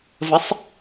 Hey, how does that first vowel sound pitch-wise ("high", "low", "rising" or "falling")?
rising